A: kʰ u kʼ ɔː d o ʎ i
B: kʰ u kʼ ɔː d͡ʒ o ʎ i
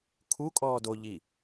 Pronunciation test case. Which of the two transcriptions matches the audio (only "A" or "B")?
A